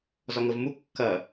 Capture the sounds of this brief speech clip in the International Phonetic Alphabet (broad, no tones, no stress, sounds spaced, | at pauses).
z ɒ ŋ ə v m u kː ɐ